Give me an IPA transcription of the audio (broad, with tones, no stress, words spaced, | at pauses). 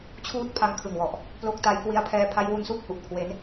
t͡ɕʰuː˦˥t̚pʰa˧ŋkʰɯ˨˩ŋwɔ˨˩ʔ | plo˦˥k̚ta˦˥j kwi˦˥a̯pʰɛː˦˥ pʰa˦˥jwu˦˥n su˦˥k̚hu˨˩ʔ kʰwe˦˥n